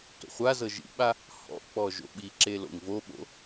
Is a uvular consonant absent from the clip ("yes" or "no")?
no